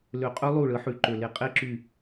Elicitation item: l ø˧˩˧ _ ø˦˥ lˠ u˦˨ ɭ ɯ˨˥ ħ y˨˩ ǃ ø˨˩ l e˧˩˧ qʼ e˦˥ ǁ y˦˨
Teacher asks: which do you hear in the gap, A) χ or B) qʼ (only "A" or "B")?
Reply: B